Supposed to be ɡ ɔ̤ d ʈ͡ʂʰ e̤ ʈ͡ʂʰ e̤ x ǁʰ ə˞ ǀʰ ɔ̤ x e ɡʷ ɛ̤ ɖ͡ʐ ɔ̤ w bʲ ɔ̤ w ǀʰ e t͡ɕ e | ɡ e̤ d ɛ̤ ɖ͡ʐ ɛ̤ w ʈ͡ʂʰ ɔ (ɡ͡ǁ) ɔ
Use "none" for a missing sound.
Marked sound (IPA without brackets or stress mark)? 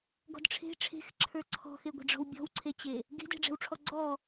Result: ɡ͡ǀ